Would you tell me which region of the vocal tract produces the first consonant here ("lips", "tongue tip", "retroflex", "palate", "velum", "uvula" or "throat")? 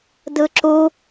tongue tip